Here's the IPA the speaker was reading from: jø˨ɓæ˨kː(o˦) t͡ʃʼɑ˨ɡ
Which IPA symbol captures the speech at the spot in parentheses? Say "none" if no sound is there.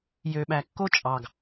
o˦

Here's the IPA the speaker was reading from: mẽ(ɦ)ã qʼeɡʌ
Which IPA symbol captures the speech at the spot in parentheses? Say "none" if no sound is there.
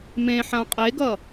ħ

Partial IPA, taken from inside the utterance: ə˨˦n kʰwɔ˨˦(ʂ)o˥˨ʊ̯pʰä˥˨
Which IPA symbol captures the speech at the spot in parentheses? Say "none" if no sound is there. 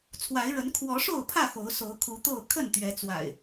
ʂ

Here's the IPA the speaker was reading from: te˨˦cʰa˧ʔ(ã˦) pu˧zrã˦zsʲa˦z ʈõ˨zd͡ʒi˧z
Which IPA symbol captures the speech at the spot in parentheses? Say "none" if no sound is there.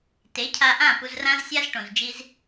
ã˦˨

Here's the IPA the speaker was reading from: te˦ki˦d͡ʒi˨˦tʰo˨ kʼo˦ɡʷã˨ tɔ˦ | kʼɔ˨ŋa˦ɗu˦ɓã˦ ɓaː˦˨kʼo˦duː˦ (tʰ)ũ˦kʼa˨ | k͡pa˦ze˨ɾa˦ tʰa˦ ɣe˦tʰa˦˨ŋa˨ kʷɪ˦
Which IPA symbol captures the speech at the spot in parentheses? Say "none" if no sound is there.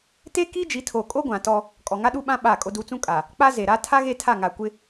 t͡s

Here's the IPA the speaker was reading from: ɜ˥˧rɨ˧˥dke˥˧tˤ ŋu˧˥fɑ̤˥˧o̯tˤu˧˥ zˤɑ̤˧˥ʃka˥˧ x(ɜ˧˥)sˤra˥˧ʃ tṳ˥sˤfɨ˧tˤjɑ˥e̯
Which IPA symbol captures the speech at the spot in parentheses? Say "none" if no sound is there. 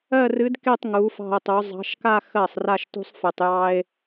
ɜ˥˩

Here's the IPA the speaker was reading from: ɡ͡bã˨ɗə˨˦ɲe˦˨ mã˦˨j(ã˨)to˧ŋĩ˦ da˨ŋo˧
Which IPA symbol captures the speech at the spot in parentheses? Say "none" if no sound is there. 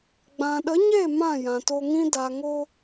ã˨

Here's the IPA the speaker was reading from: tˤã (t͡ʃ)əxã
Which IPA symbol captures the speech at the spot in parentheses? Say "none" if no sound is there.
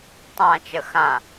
t͡ʃ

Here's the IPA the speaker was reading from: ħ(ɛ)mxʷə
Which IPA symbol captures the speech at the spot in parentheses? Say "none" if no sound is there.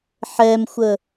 ɛ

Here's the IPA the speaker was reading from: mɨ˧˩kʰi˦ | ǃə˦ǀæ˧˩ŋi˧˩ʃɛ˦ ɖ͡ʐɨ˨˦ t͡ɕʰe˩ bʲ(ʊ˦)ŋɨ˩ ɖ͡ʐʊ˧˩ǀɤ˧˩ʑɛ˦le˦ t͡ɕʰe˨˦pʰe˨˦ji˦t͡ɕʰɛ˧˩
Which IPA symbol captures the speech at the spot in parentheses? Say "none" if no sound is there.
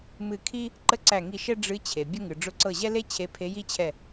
ʊ˦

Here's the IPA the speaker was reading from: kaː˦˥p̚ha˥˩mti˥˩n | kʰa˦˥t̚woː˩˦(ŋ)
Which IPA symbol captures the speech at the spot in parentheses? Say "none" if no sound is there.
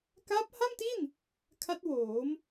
m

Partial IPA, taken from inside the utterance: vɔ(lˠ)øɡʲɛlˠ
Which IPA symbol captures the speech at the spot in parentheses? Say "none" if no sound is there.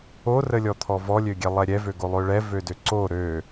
lʲ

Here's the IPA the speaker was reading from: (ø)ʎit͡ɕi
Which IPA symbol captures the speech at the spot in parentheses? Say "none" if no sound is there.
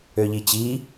ø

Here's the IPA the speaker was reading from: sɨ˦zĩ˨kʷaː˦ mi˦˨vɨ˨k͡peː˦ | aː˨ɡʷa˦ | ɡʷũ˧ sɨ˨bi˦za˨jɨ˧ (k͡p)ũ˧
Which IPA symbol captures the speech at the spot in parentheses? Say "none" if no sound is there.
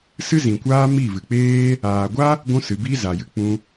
k͡p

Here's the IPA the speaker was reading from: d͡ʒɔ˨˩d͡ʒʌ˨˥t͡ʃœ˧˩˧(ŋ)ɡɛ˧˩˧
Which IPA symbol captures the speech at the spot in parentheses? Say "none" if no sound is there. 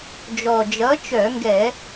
ŋ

